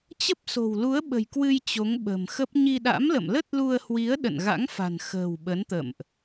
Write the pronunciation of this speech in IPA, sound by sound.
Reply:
t͡ɕə˦˥p̚so̤˨˩wlu˨˦ə̯ ɓə̤˨˩jkwɨ˧j t͡ɕo˨˦ŋɓə̤˨˩mxə˦˥p̚ ɲi˧ ɗa̰˧˥mlə̰˧˨m lə˦˥t̚lu˧ə̯hwi˨˦ə̯ ɗə̰˧˨nɣa̰˧˥ŋfa̤˨˩n xə̤˨˩w ɓə˨˦nt̪ə̰˧˨mʔ

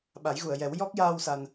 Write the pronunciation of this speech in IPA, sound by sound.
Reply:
ɓa˨˩˦jɣu˨˩˨ə̯jɛ˨˩˦w jɔ˦˥k̚jaː˧w sa˧n

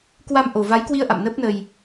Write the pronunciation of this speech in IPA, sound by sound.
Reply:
kwa˧mʔo˨˩va˨˦jkwi˧ə̯ ʔa̰˧˨mnəː˦˥p̚nə˧j

